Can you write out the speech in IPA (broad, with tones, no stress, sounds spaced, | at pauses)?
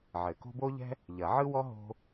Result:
ʕ ɘ˨˩˦ k o̤˥ b o˥ ʎ ɛ̤˥ | ʎ ɐ˨˩˦ ʕ ɯ˥ w ɔ˥ ɦ o̤˥